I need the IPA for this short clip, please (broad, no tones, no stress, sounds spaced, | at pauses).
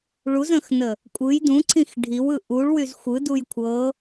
ɭ u z ə̃ x n ə | kʷʼ ɯ j d ũ ǀʰ ĩ x ɖʱ i w ɯ ʔ u ɭ w y z xʷ ɯ d u j kʷʰ ɤ